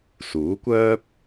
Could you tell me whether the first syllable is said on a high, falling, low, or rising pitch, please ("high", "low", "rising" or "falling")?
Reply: rising